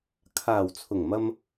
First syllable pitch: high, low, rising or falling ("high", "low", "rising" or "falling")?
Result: low